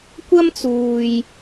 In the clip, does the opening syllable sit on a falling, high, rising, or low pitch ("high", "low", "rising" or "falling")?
high